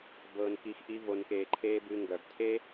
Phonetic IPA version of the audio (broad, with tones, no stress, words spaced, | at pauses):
bɤː˧nki˧x ʔi˦vo˧nkeː˧ǃʰeː˦ bɨ˧ ŋɡœ˨btʰe˦